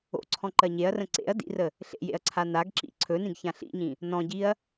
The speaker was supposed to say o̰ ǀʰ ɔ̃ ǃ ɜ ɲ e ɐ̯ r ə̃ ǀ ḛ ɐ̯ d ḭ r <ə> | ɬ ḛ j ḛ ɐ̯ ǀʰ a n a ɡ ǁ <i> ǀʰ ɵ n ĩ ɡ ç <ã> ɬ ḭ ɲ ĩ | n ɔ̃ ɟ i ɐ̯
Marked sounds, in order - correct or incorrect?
correct, incorrect: ḭ, correct

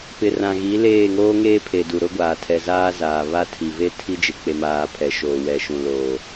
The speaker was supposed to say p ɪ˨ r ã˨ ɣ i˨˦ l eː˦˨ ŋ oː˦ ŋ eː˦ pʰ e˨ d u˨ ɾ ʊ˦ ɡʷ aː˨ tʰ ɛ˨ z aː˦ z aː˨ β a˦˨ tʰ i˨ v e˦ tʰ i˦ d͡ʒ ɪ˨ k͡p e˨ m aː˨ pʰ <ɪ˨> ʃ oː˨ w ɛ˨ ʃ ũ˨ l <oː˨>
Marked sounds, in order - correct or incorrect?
incorrect: ɛ˨, correct

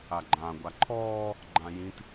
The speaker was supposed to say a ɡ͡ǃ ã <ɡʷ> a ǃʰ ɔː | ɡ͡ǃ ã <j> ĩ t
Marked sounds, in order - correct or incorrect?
correct, correct

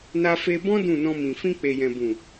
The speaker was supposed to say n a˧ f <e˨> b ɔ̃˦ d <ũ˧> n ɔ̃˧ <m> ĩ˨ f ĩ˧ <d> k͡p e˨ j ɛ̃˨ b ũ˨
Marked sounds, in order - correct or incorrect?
incorrect: e˧, incorrect: ũ˦˨, correct, incorrect: none

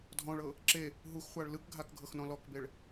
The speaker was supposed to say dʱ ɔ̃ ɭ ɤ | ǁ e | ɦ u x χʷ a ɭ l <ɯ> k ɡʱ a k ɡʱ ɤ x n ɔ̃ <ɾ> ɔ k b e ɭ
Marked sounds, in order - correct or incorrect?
correct, incorrect: l

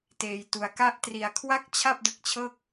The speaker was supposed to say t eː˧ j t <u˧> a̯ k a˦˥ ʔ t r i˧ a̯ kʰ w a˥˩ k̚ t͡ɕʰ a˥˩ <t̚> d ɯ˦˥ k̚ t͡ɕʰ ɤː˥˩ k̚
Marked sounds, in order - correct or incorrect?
correct, incorrect: p̚

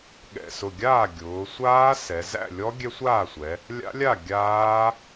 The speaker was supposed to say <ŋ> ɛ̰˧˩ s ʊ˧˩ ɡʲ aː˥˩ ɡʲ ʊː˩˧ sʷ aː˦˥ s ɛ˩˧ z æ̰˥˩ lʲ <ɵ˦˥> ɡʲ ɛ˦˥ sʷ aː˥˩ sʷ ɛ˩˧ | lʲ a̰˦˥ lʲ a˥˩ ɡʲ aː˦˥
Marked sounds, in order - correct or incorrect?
incorrect: ɠ, incorrect: ɔ˦˥

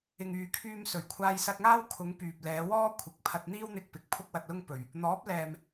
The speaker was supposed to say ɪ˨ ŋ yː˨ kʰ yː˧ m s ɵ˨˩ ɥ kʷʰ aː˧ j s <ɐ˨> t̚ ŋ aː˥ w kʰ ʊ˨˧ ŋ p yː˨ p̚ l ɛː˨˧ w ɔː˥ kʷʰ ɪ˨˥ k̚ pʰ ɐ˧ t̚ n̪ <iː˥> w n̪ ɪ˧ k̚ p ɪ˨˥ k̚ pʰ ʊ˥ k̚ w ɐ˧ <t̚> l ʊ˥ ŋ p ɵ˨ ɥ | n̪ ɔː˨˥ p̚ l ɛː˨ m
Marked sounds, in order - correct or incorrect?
incorrect: ɐ˧, correct, correct

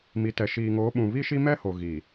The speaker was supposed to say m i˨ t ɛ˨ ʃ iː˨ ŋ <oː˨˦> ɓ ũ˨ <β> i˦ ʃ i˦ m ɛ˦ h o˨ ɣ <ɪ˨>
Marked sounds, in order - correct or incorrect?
correct, correct, incorrect: i˨

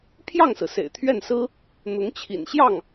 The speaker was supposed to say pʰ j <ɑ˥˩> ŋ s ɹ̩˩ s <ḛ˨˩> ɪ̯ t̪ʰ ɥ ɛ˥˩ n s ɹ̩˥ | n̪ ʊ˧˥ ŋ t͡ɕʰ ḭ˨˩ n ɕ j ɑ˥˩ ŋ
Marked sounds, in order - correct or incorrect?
correct, correct

